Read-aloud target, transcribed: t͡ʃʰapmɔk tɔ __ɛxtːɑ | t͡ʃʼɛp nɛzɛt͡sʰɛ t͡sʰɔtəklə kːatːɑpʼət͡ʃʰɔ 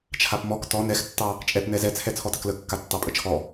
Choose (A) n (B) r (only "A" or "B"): A